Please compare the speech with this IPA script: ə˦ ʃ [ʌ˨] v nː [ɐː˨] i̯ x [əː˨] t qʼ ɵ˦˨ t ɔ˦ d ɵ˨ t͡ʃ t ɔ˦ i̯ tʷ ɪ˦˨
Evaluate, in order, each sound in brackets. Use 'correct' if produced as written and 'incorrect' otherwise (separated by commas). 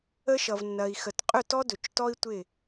correct, incorrect, incorrect